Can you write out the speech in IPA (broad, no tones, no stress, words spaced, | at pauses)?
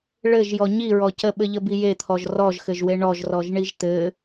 ɭɘʒjɔ ɲiɹɔ cəɓɘʎəbi jet̪ʰɔʒ rɔʒxɘʒwe ɳɔʒrɔʒɳiʒ t̪ɘ